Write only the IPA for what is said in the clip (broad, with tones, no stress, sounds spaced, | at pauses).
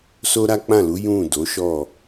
s o˦ ɾ a˦ k͡p ã˦˨ l u˨˦ j ũ˦˨ d o˨˦ ʃ ɔ˦˨